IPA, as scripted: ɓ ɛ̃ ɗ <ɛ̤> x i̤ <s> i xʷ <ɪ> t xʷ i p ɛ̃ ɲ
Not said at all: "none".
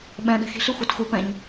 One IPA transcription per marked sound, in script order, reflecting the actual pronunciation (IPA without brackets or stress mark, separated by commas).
ɛ̤, ɬ, ɛ